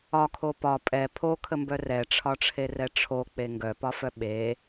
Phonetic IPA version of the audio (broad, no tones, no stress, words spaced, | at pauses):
ɒkʰo pɒ pʼɛ pʰokʰəmbœ rɛʈ͡ʂʰɒʈ͡ʂʰerɛ ʈ͡ʂʰok͡pe ŋɡœpɒfœ ɓe